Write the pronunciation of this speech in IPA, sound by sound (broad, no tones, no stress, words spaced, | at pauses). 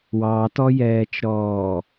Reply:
wɑtɔjɛːt͡ʃɾɔː